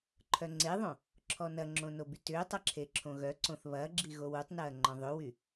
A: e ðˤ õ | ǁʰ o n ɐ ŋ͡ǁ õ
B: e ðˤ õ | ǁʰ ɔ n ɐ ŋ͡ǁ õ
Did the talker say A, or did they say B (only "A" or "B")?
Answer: B